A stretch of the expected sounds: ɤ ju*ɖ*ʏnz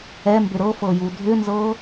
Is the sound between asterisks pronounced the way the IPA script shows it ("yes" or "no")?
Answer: no